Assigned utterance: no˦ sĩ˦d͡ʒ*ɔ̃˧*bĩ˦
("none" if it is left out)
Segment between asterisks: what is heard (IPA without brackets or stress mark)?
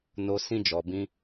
ɔ˧